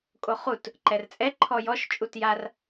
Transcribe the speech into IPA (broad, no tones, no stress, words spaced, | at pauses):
kʼoχut | ǃɛrt͡sʼɛ ǃʰɔjɔʃ t͡ʃʼutjar